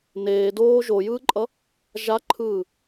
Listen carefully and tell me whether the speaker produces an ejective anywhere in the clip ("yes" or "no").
yes